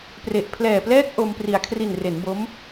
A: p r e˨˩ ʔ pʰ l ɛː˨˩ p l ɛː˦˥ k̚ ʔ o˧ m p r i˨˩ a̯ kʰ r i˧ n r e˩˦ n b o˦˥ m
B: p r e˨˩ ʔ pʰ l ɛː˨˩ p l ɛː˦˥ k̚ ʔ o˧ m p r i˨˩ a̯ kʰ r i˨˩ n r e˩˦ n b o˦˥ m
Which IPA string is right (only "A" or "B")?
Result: B